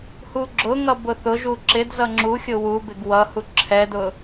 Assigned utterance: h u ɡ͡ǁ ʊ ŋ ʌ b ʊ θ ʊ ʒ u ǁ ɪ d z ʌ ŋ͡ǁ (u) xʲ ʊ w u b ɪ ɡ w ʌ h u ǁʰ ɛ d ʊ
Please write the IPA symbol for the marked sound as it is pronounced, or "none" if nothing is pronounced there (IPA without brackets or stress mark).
u